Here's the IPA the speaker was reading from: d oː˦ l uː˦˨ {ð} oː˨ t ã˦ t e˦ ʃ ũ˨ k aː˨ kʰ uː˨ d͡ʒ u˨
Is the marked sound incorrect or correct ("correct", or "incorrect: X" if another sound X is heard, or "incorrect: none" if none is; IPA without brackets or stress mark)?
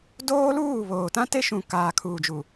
incorrect: β